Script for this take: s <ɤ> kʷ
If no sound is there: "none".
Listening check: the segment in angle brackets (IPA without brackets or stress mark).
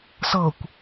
ɤ